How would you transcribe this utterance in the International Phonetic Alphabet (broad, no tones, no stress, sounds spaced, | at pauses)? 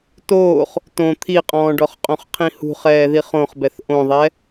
t oː χ | t õ t̪ʰ i qʼ ɔ̃ː ɖ ɔ χ qʼ õ χ qʰ ĩ h ṳ χ ɛː ð i χ õ χ b ɛ θ ʔ õ ðˤ ɛ